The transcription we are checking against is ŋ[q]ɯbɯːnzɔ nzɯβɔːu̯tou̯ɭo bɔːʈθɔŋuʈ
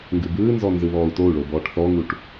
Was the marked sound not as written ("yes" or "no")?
yes